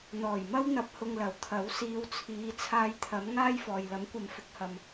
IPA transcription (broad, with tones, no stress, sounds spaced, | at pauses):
n̪ ɔː˨˩ j m ɐ˥ w n̪ ɐ˧ p̚ h ʊ˧ ŋ l ɐ˨˩ w t̪ʰ ɐ˨˥ w s iː˨˧ w t͡sʰ iː˨˧ t͡sʰ aː˧ j t̪ʰ ɐ˨˥ m ŋ aː˥ j f ɔː˨ j l ɐ˨˥ m kʷ ɐ˨ m f ɪ˨˥ k̚ h ɐ˨ m